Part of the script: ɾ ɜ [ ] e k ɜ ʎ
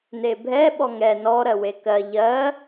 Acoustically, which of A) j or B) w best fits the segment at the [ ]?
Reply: B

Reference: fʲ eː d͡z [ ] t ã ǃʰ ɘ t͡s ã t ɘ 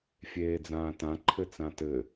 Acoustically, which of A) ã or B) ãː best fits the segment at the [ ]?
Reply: B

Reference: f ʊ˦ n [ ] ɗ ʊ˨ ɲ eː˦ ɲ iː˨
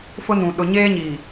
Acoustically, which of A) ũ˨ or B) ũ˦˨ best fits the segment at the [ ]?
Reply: A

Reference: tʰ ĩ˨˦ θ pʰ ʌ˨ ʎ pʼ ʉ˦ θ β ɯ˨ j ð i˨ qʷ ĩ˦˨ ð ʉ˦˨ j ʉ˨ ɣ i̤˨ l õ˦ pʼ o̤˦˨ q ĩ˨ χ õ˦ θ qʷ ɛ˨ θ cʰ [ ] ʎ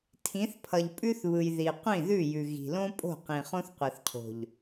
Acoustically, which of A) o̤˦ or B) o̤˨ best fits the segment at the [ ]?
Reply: B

